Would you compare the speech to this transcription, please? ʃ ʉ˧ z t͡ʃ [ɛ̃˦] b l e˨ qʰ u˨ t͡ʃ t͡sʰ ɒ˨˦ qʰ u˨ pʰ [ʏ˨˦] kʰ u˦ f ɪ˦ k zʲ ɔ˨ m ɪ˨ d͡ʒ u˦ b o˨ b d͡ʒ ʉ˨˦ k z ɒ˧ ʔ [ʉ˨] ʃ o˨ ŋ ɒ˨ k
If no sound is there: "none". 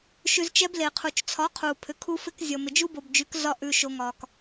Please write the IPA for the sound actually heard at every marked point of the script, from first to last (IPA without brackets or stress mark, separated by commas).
ɛ˦, ʏ˨˦, ʉ˨